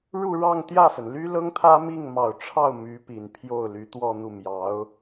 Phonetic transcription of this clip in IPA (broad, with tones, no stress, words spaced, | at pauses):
ɻu˥˧ ɻɑ˥˧ŋ t̪jä˥˩fə˩nly˥ lɤ˥ŋt̪ʰä˥ mi˥˩ŋmɑ˨˩ʊ̯ʈ͡ʂʰɑ˥˩ʊ̯ my˧˥pi˨˩npʰjo˥˩ʊ̯ly˧˥ t̪wɔ˥˧n̪u˥˩mjɑ˧˥ʊ̯